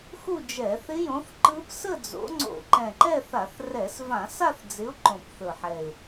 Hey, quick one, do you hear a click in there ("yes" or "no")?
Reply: yes